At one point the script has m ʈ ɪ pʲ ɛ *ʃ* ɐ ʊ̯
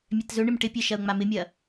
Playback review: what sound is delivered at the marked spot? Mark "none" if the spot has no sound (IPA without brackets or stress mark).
ʃ